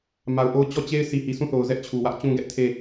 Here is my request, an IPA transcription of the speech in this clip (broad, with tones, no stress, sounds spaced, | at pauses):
m a˨ ʊ̯ ʔ o˦ ʊ̯ t͡ɕ ɔ˦˨ t͡ɕ e˦ ɪ̯ s i˨ h i˨ sʰ ũ˦˨ θ o˨ ʊ̯ z ɛ˦ ʔ t͡ɕʰ u˨ w ä˦ ʔ t͡ɕ ũ˦ ɡ ɛ˦ ʔ tʰ e˦˨